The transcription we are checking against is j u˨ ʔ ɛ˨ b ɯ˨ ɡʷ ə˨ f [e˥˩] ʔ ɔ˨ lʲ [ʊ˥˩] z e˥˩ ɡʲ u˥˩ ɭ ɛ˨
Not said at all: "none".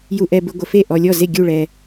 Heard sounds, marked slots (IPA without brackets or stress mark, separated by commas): e˥˩, ɔ˥˩